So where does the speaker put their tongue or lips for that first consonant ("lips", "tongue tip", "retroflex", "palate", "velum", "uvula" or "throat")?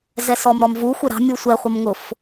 tongue tip